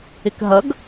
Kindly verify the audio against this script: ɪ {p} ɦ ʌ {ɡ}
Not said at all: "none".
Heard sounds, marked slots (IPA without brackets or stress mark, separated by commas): k, ɡ